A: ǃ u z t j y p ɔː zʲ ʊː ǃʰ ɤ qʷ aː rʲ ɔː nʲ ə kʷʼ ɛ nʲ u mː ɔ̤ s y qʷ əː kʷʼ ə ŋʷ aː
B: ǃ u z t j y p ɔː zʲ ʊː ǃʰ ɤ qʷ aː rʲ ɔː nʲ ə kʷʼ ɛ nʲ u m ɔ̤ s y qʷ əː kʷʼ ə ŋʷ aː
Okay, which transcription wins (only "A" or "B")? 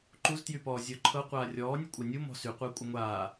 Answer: B